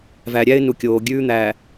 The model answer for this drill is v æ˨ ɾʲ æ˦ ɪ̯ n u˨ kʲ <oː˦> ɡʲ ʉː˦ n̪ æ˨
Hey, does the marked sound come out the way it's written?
no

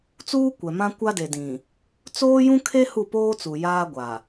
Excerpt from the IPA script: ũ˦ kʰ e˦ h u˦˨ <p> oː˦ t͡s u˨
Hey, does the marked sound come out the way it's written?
yes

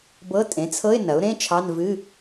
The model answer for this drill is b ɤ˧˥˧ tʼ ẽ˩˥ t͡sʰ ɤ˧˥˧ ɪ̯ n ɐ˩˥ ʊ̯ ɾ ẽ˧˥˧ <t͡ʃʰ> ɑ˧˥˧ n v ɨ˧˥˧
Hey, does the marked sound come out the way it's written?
yes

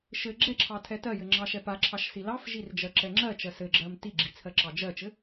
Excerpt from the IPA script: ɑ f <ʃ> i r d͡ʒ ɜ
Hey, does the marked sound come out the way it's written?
no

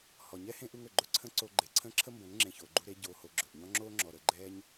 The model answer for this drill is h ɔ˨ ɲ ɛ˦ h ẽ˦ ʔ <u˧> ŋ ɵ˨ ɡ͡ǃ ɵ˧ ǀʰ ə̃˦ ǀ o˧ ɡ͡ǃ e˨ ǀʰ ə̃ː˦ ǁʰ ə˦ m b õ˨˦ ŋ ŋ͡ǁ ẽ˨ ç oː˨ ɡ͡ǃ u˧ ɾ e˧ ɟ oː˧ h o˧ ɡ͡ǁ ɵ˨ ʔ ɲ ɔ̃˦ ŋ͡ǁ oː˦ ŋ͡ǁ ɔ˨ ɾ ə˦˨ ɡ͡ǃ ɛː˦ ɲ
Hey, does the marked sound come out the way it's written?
yes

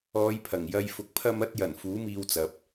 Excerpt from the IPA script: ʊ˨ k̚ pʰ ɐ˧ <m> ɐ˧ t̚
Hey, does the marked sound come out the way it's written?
yes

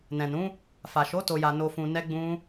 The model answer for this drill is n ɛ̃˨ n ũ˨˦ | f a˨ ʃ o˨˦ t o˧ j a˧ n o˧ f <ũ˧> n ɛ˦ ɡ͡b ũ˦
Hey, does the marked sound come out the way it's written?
yes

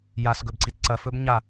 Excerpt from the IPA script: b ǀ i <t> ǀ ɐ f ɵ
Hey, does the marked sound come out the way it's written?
yes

